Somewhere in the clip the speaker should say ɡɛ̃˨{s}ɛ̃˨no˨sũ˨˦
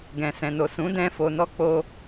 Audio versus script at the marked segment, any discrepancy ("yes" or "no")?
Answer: no